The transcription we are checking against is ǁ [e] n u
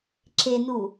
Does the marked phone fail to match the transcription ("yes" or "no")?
no